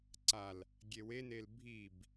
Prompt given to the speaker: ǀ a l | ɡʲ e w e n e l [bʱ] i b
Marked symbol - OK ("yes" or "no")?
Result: yes